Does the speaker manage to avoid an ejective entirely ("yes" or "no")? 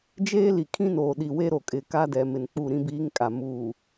no